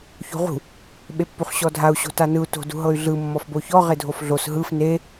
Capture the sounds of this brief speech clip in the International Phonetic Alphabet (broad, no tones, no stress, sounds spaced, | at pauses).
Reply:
ç o̤ ʁ ṳ | ɓ e pː u χ ɕ ɔ dʱ a u̯ ɕ o̤ t a n ɯ u̯ t o̤ d ṳ ɦ ɤ y̯ ɮ ɯ mː ɔ f b o ç ɔ ʁ e dʱ o f ɮ o s ɦ ɯ f n e